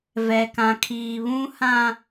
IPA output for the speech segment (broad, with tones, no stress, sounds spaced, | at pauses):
v ɛ˨ k ã˨ kʰ iː˨ β ũ˦ h ã˨